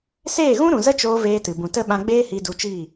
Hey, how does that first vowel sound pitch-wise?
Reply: falling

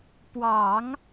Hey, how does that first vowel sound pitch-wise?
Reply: low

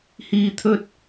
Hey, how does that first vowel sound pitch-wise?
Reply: low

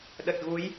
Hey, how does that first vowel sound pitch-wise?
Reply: low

